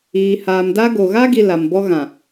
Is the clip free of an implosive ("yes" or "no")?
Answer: yes